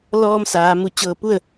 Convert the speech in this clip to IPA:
l ɔː˧ m s aː˩˧ m u˧˩ t͡ɕ ɤː˧˩ p u˥˨ ə̯

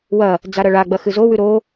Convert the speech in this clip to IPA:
w ɐ | d͡z a ɾ ɐ ɭ a ɡ͡b ɐ x ɨ z o w ʉ ɾ o

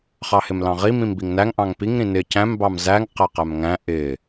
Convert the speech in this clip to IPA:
χ ɑ h ɪ m l ɑ̃ ʁ i m ĩ m b i ŋ n æ ŋ ʔ ɑ̃ ŋ p i ŋ ɾ ĩ n ɪ c æ̃ m b ɑ m z æ ŋ q æ q æ m ŋ æ̃ ʔ ɪ

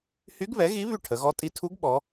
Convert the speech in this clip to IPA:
h y˧˥ ɡ β ɛ˩˥ ɣ i˧˥ β y˥˩ ʈʰ ə˩˧ ɣ ɔ˧˥ tʼ i˧ tʰ u˧˥ ɡ ɓ ɔ˩˧

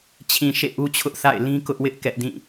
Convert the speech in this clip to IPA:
t͡ɕʰ ĩ˨ ʃ ḛ˦˨ ʔ u˦ t͡ɕʰ ʊ˦ ʔ θ a̰˦˨ ɪ̯ l ĩ˦ k ʊ˦ ʔ w ɪ˦ ʔ k ɛ˦ ʔ d ĩ˦˨

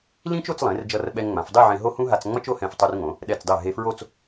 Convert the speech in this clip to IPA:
l ĩ˥ t͡ʃ o˥˧ t͡s lˠ ẽ˩˧ r d͡ʒ ʌ˧ r ɓ ɛ˧ ŋ ŋ͡m ã˩˧ f dˤ e˥˧ ʕ ẽ˧ ɦ o˥ h ũ˥ ɦ a˧ t͡s ŋ͡m ʌ˥ t͡ʃ o˥˧ h ɛ̃˧˩ f tˤ u˧ r ŋ õ˩˧ | ɗ ɛ˧˩ t͡s dˤ e˧˩ ɦ e˧ f ɹ o˥˧ t͡s

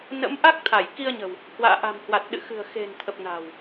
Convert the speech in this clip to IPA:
n ə̰˧˥ m ʔ a˦˥ k̚ t̪ʰ a˧˩ j k i˧ ə̯ ɲ ə̤˨˩ w | h w a̰ː˧˨ ʔ a̤˨˩ m h w a˨˩ t̚ ɗ ɨ̰˧˨ x ɨ̤˨˩ ə̯ x e̤˨˩ n t̪ʰ ə˨˩ p̚ n a̤˨˩ w

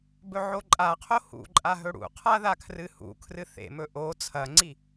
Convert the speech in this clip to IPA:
b ɵ ʕ o ǃʼ a qʰ o h ṵ ǃʼ a ɦ ɵ ɽ ṵ qʰ a ð a kʰ r ɨ h ṵ kʰ r ɨ θ ḛ m ɵ ʔ o t͡sʰ ɐ ŋ͡ǀ i

